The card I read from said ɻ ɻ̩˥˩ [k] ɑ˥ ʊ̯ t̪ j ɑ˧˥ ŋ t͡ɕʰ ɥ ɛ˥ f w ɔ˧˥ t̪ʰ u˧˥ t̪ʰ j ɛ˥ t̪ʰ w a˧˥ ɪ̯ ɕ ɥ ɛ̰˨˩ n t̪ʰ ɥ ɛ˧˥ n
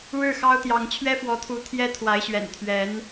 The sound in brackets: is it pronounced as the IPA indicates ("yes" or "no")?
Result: no